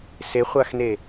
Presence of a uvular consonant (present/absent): present